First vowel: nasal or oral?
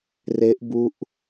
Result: oral